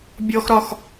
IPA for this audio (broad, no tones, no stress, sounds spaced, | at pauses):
bʲ ɔ x ɾ ɒ x